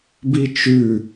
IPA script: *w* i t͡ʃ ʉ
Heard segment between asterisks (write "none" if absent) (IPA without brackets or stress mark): b